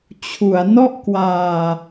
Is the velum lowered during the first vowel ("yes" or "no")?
no